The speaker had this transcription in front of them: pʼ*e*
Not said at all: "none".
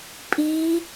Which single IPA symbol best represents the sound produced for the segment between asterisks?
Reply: i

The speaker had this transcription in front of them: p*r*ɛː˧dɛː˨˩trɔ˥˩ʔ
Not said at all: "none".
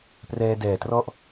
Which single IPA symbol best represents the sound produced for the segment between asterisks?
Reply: r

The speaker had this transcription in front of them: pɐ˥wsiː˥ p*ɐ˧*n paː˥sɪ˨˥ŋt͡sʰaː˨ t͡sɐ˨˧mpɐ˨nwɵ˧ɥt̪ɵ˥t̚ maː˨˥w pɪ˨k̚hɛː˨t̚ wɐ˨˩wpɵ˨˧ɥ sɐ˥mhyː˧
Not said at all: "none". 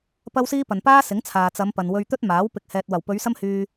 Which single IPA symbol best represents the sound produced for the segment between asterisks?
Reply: ɐ˨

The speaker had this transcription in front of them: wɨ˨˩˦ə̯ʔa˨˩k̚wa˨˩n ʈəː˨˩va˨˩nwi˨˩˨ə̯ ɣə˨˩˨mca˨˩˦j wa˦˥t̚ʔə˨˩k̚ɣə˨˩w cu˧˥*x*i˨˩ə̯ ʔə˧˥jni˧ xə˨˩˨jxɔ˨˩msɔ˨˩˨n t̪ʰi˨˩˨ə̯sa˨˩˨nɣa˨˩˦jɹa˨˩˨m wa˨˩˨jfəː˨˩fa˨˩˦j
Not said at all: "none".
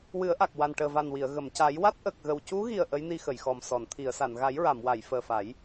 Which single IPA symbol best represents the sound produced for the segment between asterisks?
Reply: ɣ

